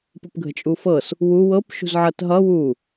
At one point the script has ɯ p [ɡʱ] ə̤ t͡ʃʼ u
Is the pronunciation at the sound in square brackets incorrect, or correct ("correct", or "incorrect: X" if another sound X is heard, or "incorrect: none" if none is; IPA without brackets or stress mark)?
correct